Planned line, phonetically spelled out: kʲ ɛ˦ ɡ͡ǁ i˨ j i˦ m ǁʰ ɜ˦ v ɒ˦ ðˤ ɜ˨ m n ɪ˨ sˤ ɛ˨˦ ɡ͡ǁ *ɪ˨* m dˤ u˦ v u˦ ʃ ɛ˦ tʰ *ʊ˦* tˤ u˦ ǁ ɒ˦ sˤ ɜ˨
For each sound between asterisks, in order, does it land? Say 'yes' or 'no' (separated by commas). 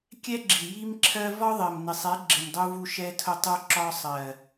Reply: yes, yes